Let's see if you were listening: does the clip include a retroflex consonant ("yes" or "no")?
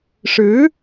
yes